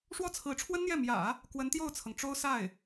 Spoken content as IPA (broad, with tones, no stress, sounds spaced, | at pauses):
ʂ w ɔ˥˩ t͡sʰ ɹ̩˧˥ ʈ͡ʂʰ w ə˥ n n̪ j ɛ˥˩ m j ä̰˨˩˦ | k w ə˧˥ n t̪ j o˥˩ ʊ̯ t͡sʰ ɤ˩ ŋ ʈ͡ʂ o˥ ʊ̯ s a˥˩ ɪ̯